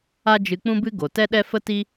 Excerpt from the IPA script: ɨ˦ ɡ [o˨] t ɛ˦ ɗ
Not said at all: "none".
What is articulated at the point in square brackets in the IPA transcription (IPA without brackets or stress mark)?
o˨